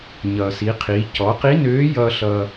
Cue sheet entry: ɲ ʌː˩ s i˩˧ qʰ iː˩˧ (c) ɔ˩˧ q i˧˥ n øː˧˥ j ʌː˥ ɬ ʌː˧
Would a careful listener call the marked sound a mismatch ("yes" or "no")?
no